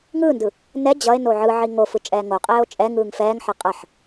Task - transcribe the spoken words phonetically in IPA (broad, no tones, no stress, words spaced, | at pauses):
ŋɯːndɯ | nɛ d͡ʑʌe̯no ʕɯʕi ŋofɯ t͡ʃʼɛːŋoqʼɛːo̯ t͡ʃʼɛ ŋɯːŋfɛːŋħʌ qʼʌħ